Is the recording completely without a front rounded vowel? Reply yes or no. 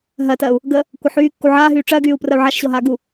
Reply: no